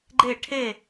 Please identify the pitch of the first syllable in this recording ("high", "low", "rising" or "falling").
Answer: falling